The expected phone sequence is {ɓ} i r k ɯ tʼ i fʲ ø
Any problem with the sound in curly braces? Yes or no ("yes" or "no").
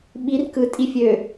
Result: no